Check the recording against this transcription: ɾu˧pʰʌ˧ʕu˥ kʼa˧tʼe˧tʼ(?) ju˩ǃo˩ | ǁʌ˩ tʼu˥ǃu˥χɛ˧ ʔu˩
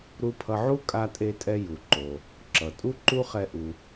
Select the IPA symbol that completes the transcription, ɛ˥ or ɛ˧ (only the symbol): ɛ˧